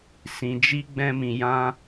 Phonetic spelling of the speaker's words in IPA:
s ĩ˧ d͡ʒ i˦ ɡ͡b ɛ̃˦ m ĩ˧ j ã˦

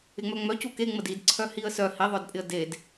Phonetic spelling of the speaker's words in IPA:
ɪ ŋ͡m œ ŋ͡m œ c u k e ŋ͡m ə d i d ǀʰ œ h i ə̯ s œ h i ðˤ œ d pʼ ɪ ə̯ d e d

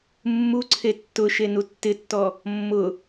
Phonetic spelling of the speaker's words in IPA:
mː u ǀʰ e tː ʊ ʃ e n u tː ɪ tː ɔ | mː ʊ

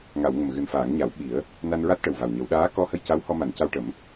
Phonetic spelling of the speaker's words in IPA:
ŋ a˨˩˨ w ŋ ə˨˩ m ɣ ɨ˨˩ n f aː˨˩˦ ŋ ɲ a˨˩˦ w ɓ i˨˩˦ ə̯ | n a˧ n ɹ a˦˥ t̚ ʈ ə˨˩ w v a˨˩ w ɲ ə˨˩˦ w ɗ aː˧˥ k ɔ˧ h ə˧ j c a˧˥ w h ɔ˧ m a˨˩˦ n c a˧ w ʈ ə˨˩˦ m

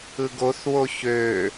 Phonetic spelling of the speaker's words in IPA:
ɯ ɡ o θ w o ç ø

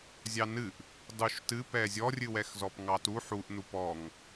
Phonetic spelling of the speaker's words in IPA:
zʲ ɑ n ɨ ʔ | dˤ u ʃ t ɨ p ɛ zʲ ɔ rʲ ɨ w ɛ x z ɔ p ŋ ɑ t u ħ u ʔ n u p ɔ ŋ

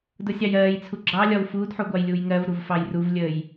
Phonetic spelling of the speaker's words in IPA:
d ʊ sʲ ɑ j ɜː j t͡sʰ u ɡ͡ǁ ɑ lʲ ɒ w f uː d ħ u ɡʷ ɑ j lʲ uː j ŋ ɜ v ɾ u v f ɑ j r u v lʲ əː j

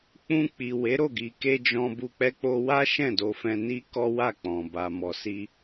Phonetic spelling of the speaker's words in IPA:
k͡p ũ˧ k͡p i˨ w e˨˦ ɾ o˦˨ ɡ i˨ k e˧ d͡ʒ ɔ̃˧ b u˧ k͡p ɛ˧ k͡p o˧ w a˦ ʃ ɛ̃˦˨ d o˧ f ɛ̃˧ n i˦ k ɔ˦ w a˦˨ k͡p ɔ̃˨ b a˨ m ɔ˨ s i˧

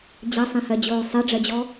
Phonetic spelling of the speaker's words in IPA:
d͡ʑ ɐ sˤ ẽ h ɜ d͡ʑ oː sˤ e ɖ͡ʐ ɜ d͡ʑ ɔ

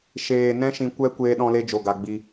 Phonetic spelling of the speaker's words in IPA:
ʃ eː˨ n ɛ̃˦ ʃ ĩ˧ kʷ ɛ˦ kʷ eː˧ ɗ ɔ̃˧ l e˧ d͡ʒ o˨ ɡ a˨ ɡ͡b i˧

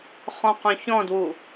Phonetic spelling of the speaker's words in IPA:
χ ɔ̃ q œ̃ ç ɔ̃ d w u

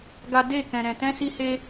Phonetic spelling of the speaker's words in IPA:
ɡ a˦ d e˦˨ k ɛ̃˧ ɾ ɛ̃˧ t ɛ̃˦ s i˦ h e˦

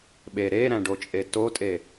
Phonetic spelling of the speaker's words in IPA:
ɓ e ɾ e ɾ æ̃ ɖ o t͡ʃʼ e t o tʼ e

